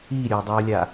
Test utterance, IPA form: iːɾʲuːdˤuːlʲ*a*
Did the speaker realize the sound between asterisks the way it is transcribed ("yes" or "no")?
yes